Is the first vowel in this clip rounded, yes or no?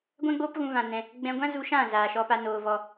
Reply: no